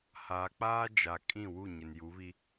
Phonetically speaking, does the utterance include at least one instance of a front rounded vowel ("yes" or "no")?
no